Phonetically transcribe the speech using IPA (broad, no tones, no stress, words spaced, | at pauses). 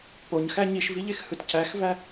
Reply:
poɲxæ ɲiʃviʎexhɯt cæxvæ